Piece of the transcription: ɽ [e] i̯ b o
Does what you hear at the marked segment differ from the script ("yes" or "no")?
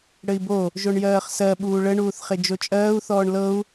yes